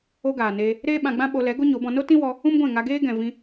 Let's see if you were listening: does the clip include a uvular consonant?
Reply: no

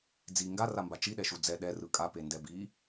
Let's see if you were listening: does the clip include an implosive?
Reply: yes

